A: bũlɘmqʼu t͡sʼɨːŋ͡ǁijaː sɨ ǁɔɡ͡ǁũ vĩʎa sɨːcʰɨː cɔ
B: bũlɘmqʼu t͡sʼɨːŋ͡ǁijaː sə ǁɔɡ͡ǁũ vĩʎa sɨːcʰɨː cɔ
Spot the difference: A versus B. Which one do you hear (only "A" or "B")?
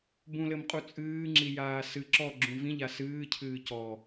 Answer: A